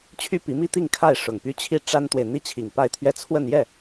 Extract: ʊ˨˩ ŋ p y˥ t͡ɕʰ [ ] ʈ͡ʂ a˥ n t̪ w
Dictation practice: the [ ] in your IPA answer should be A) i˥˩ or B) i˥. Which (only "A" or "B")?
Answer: A